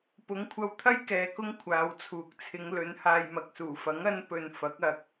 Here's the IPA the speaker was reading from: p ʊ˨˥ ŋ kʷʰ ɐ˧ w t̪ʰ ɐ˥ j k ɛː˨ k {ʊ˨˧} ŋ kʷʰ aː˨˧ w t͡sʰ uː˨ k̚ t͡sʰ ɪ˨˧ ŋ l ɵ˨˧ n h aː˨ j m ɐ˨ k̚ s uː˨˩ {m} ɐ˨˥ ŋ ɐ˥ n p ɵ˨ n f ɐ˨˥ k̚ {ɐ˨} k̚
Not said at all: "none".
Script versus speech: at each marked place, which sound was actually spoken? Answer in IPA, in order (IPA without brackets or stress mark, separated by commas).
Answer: ʊ˥, f, ɐ˨